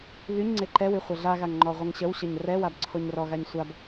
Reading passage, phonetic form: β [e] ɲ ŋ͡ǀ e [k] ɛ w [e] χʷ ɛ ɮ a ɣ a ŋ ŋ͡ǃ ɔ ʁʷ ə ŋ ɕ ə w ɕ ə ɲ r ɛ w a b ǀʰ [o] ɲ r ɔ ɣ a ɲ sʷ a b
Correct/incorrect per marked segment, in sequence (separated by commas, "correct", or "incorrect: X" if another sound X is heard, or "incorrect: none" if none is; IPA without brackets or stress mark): incorrect: y, incorrect: ǃ, incorrect: y, correct